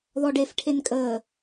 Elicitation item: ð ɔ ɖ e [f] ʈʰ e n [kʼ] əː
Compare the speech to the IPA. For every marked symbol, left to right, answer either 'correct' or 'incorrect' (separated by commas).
correct, correct